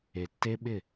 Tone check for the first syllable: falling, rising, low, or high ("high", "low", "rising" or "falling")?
low